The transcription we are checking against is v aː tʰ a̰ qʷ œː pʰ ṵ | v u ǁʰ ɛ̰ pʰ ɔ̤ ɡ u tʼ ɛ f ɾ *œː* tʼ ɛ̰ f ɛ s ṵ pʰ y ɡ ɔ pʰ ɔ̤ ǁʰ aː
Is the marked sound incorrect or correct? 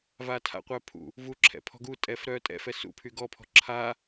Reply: correct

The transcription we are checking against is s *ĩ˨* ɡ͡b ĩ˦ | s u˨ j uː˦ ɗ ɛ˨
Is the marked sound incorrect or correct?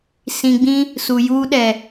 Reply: correct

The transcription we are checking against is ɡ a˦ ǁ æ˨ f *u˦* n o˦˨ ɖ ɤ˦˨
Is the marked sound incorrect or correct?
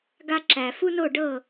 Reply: correct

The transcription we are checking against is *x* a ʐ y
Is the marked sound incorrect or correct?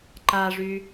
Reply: incorrect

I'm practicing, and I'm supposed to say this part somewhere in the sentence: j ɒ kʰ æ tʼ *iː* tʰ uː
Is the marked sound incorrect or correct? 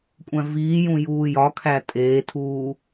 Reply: incorrect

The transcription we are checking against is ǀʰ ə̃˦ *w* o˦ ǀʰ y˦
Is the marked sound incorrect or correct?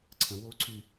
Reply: correct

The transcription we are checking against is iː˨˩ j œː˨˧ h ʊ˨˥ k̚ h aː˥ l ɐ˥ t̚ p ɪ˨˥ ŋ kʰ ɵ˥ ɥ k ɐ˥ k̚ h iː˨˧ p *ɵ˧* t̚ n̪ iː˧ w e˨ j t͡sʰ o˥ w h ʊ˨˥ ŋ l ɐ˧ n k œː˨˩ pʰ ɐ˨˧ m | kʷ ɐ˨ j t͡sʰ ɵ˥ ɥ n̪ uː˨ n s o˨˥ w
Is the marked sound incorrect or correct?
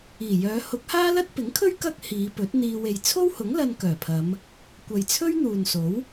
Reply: incorrect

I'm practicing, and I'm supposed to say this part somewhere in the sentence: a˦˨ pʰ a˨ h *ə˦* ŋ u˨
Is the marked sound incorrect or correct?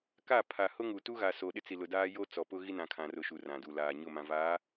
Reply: incorrect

